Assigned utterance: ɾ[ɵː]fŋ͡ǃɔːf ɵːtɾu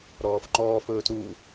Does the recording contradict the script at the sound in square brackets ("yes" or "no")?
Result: yes